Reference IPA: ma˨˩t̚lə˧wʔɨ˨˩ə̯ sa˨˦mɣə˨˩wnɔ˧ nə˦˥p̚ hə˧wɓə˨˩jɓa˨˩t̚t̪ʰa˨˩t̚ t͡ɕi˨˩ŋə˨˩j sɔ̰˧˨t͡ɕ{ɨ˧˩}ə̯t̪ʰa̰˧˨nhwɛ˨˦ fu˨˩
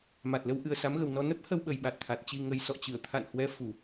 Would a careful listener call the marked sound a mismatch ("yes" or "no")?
no